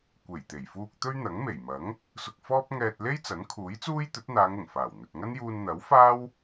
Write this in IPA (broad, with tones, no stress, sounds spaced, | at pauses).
kʷ e˨˩ j t̪ e˨˩ j f uː˧ k̚ t̪ ɵ˥ ɥ n̪ ɐ˨˥ ŋ m e˨˩ j m ɐ˨˥ ŋ | s ʊ˧ k̚ f ɔː˥ p̚ ŋ ɛː˧ t̚ l e˥ j t͡s ɐ˨˥ n kʰ uː˨˥ j t͡s uː˥ j t̪ ɵ˨˥ t̚ n̪ aː˨˧ ŋ ʊ˨˩ ŋ f aː˨˩ w n̪ ɵ˨ t̚ ŋ ɐ˥ n j uː˧ n n̪ ɐ˨˥ w f aː˥ w